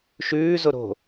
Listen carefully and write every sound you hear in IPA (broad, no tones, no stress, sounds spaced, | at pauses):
ʃ ʉː z o ɾ o̤